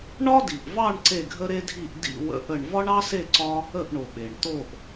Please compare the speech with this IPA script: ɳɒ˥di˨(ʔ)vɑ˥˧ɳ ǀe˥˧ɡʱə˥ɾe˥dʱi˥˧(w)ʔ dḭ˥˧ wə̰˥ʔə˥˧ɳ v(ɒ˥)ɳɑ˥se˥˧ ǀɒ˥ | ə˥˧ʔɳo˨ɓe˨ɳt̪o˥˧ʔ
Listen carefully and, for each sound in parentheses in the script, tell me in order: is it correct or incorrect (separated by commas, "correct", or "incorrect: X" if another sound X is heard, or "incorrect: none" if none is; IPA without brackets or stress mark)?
correct, incorrect: none, correct